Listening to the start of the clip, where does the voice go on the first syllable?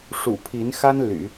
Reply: low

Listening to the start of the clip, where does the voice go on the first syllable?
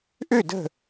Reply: falling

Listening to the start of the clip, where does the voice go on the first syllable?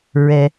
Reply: low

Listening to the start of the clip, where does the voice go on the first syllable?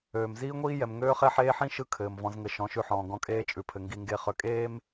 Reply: low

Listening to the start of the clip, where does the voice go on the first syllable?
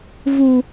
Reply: low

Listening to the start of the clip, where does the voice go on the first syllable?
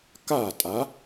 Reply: falling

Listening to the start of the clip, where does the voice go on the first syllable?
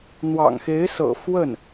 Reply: low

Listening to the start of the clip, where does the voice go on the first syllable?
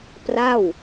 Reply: falling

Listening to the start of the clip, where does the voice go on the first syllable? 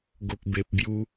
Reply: low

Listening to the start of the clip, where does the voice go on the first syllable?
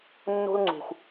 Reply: high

